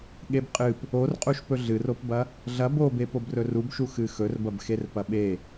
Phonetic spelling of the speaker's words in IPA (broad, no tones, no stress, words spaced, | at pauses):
ɠebqʼɨp | orqʼuʃpɵ ɮɨropbɐ | ɮɐ bobe pobrɵrubʃu xɨxɵrbɐb xerpɐɓe